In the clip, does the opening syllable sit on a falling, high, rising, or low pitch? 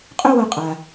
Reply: high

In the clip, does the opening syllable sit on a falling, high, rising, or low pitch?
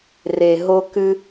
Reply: low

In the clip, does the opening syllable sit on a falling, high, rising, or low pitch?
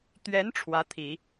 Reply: rising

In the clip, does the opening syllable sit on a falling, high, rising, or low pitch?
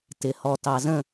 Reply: low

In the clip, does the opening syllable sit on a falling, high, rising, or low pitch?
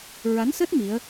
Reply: rising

